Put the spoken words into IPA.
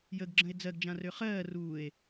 j ə ɡ ɡ͡ǁ ə̃ e̯ d͡z ɜ ɡ d͡ʒ ã r ø χ ɜː r uː e̯

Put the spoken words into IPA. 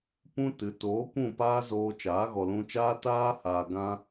p ũ˦ t ɨ˨˦ t oː˨˦ kʷ ũ˦˨ p aː˦ z oː˧ t͡ʃ aː˨˦ ɣ ɔ˨ l ũ˧ t͡ʃ aː˦ t aː˧ h aː˨ ɡ ã˧

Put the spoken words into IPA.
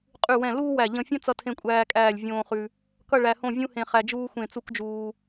qʼ ʉ˧˩ w ɛ̃˧˩ l uː˥ w æ˧˩ ʎ ə̃˧ fʲ ə̃˥ t͡s ʌ˥ tʰ ẽ˥ kʷʼ æː˥ kʼ æː˥˧ lʲ vʲ õː˥ χ ʉ˥ | k ʌ˥˧ ɭ æ˧ h õ˥˧ vʲ ũ˥ h ẽ˧ χ æ˧ d͡ʒ uː˥ xʷ ẽ˥˧ t͡s u˥ k d͡ʒ uː˧

